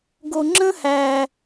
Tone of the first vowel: low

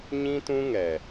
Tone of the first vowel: high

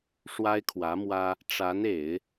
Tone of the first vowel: high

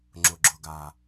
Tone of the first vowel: low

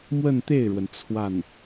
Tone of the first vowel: falling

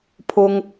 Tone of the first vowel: high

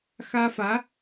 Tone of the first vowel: high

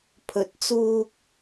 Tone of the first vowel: low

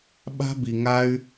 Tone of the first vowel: high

